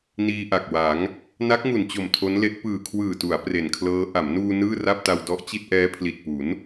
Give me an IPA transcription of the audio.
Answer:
n iː˧ ʔ a˨˩ k̚ w a˩˦ ŋ | n a˦˥ k̚ ŋ u˨˩ n t͡ɕ o˨˩ m tʰ o˦˥ n l e˦˥ ʔ p ɯː˨˩ kʰ w ɯː˨˩ t u˩˦ a̯ p r e˨˩ n kʰ l ɤː˦˥ ʔ a˩˦ m n uː˧ n ɯː˥˩ r a˥˩ p̚ t a˧ w d ɔ˦˥ ʔ t͡ɕ i˥˩ t̚ ʔ ɛː˦˥ pʰ l i˨˩ t̚ p u˩˦ n

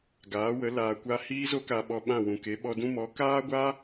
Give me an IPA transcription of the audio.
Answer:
ɡ aː˨˦ w ə˨˦ l aː˨ kʷ a˧ h iː˦ z o˦ k a˧ ɓ ɔ˧ ɓ ã˦˨ w ũ˨ k e˨˦ ɓ ɔ˧ d ũ˦ m ɔ˨˦ k aː˦ ɡʷ a˦

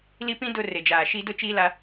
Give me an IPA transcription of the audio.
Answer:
l i˦ p ĩ˦ d ʊ˦˨ r e˨ d͡ʒ aː˨ ʃ i˦ d ʊ˦ t͡ʃ iː˦ l a˦

